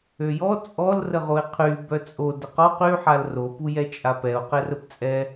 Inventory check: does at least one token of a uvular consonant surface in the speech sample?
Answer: yes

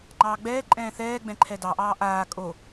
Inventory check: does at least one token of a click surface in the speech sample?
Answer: yes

